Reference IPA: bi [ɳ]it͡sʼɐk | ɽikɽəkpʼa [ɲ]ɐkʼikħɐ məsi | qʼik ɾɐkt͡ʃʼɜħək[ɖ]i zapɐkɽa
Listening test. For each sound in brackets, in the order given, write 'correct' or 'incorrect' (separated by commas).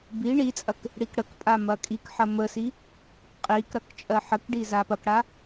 correct, incorrect, correct